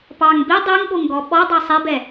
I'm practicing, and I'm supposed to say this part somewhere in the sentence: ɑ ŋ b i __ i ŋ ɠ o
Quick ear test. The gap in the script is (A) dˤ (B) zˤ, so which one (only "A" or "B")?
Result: A